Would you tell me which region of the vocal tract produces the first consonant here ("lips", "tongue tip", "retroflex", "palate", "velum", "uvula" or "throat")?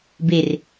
lips